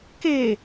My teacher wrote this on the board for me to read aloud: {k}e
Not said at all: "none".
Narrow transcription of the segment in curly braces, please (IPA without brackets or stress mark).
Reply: k